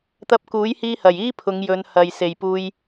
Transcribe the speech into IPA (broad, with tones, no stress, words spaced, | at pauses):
t̪ɐ˧p̚kuː˨˥jhiː˧hɐ˨˩j iː˥pʰʊ˨˧ŋjɵ˨˧n hɐ˨jse˨jpuː˧j